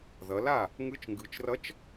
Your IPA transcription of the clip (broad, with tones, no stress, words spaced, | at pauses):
ðʌ˩˧la˥˩ | ŋɯ˧˥t͡ʃŋɡɯ˩˧t͡ʃrʌ˧˥t͡ʃ